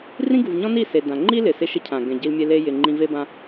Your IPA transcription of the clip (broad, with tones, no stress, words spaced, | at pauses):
rĩ˦ɡu˨vɲɔ̃˦ni˦˨ se˨ dã˨ŋ͡ǃi˦ lɪ˨ sɪ˦˨ʃɪ˦cʰã˨ ɡɛ̃˨ɟi˧lmʲe˧ le˧jɪ˨ ŋ͡ǃĩ˧ve˦bã˦